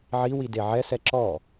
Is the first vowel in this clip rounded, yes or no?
no